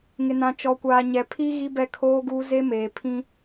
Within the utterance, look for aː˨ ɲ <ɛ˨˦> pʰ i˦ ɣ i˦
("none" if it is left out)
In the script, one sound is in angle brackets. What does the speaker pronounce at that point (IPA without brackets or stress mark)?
ɛ˨